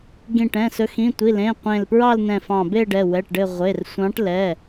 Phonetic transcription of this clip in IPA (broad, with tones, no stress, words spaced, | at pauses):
ɡĩ˧˩ʈɛ̃˩˧˩sɵ˨˦ xĩ˩˧˩tʷi˩˧˩lẽ˩˧˩ qʷẽ˧˩lpɹɑ˥˧lnɛ̃˧˩ fɑ̃˧˩be˥˧ɖɛ˩˧˩ wɛ˩˧˩ʈɖɘ˧˩ʁʷe˩˧˩r sʷɑ̃˨˦ʈlɛ˩˧˩